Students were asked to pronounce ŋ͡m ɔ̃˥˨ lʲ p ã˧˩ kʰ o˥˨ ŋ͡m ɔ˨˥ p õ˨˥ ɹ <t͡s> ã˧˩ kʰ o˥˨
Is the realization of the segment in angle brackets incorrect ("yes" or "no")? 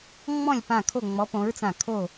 no